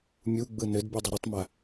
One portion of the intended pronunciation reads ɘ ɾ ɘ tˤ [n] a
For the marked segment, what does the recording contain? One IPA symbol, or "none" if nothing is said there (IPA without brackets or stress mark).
m